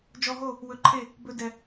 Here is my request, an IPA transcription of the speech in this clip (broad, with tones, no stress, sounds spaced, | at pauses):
d͡ʒ ɔ˧ ɦ o˦˨ | w ɵ˧ ǃʰ e˦˨ | b ɵ˧ d ɛ˨